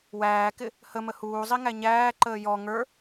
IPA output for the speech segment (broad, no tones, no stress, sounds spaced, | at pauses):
w æː k ɪ | h ə m ə h uː zˤ i ŋ æ ɲ æː ǃ əː j ɔ ŋ ə˞